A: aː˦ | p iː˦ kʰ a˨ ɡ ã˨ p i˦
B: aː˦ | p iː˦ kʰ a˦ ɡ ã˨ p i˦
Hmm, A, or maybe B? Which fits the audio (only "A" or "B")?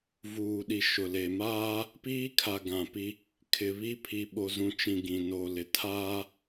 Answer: A